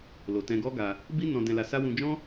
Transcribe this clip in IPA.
l o˨ t ɛ̃˧ ɡ ɔ˦ ɡ a˧ | b i˦ n ɔ̃˧ d ɛ̃˧ l a˧ s a˦ w ũ˧ d͡ʒ ɔ̃˦

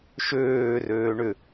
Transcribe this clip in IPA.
ʃ øː r øː ɳ ʏ

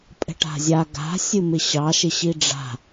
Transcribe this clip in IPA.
pʼ ɛ̤ ʈ a̤ zʲ a ɡ a̤ sʲ ɨ m ɪ ɕ ɑ ʃ ɪ ɕ i ɖ͡ʐ a̤

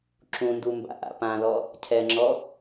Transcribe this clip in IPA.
ǁ ũ n d u m b a̰ ʔ a̰ p ã ð ɔ | cʰ ɛ ŋ͡ǁ ɔ

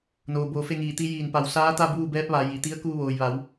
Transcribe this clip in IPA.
n oː˩ b oː˧˩ f e˥˨ ŋ iː˧˩ t̪ i˧ j iː˧˩ n p a˧˩ w s aː˧˥ t̪ a˥˨ b uː˥˨ b ɛː˧˥ p̚ ʋ a˩˧ j i˩ t̪ i˧˥ ə̯ k uː˧ ʋ oː˩ j ʋ a˩˧ w

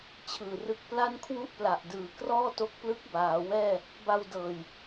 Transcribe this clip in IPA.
t͡ɕʰ ɯː˨˩ r ɯ˦˥ k̚ p l a˥˩ n kʰ w u˥˩ ʔ p l a˨˩ ʔ d ɯː˩˦ k r ɔː˥˩ t o˦˥ k̚ p l ɯ˦˥ k̚ b aː˩˦ w ɛː˥˩ | b a˧ w d ɤː˨˩ j

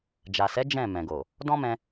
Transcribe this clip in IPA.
d͡ʒ a˨ s ɛ˨˦ d͡ʒ ɛ̃˦˨ m ɛ̃˨ ɡ o˨ | d ɔ̃˦ m ɛ̃˧

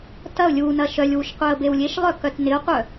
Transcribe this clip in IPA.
t ɐ ʊ̯ lʲ u n ɐ ʃ œ lʲ w u ʃ qʷ œ ə̯ b e w lʲ e ʃ lˠ œ k œ t n ɪ ʊ̯ qʷ œ

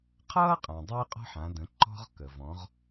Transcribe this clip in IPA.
qʰ ʌː˥ qʼ ã˩ dˤ ɪː˥ qʼ ɔ̤˥ ħ ã˩˧ d ə̃˩˧ ǃ ɔ̤˧ ʁ k ə˩ v ɔ̃˩˧ ʁ

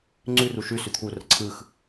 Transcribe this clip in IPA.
ŋ͡ǀ ʉ r u ʃ ʉ s ʉ t̪ʰ u r ə ǀʰ ɯ x

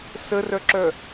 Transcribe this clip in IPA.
s ə r œ ǁ œ

